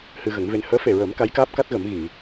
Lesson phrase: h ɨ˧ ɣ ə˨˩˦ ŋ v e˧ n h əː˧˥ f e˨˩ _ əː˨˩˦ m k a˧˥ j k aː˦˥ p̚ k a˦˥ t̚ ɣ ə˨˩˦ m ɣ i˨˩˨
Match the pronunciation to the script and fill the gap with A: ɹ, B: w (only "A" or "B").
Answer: A